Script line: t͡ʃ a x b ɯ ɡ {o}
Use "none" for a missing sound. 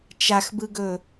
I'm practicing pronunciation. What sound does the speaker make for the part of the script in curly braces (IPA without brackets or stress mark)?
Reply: ɵ